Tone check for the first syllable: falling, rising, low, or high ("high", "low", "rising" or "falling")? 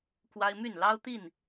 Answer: high